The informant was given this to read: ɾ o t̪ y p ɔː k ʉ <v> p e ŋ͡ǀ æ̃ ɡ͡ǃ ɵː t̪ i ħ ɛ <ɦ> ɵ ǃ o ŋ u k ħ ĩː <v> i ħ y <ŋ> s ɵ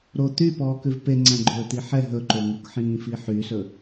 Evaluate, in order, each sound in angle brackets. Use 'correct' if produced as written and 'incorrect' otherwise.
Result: correct, correct, incorrect: f, incorrect: none

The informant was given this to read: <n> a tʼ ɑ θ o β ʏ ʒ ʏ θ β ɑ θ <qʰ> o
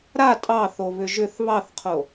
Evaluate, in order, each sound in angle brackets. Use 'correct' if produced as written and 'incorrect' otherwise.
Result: incorrect: ɾ, correct

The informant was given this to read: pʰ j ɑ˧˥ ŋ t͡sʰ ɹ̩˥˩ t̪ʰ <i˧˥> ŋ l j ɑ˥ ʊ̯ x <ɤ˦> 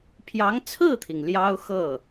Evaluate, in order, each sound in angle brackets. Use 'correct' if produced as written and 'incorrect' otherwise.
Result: incorrect: i˩, incorrect: ɤ˥˩

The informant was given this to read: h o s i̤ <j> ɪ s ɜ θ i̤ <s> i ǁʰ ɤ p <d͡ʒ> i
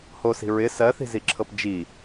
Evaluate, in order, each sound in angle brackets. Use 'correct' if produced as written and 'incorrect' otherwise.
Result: incorrect: ɹ, incorrect: z, correct

